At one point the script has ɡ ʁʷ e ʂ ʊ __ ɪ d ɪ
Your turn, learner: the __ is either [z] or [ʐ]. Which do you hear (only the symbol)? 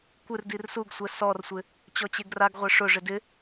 ʐ